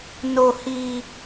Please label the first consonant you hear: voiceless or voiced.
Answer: voiced